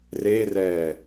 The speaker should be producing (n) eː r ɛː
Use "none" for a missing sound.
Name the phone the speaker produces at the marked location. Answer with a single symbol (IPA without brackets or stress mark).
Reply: r